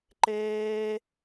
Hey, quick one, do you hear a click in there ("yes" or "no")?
yes